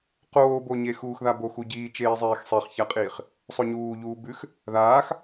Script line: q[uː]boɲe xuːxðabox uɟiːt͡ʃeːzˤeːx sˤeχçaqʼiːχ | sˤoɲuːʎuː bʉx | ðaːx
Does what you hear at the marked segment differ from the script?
yes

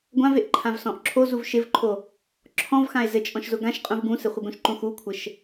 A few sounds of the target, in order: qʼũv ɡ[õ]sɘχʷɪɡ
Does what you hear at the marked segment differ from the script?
yes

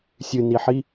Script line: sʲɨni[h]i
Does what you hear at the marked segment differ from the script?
yes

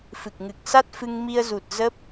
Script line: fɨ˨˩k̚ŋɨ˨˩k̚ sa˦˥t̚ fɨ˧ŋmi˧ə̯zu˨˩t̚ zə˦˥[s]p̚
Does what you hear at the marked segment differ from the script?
yes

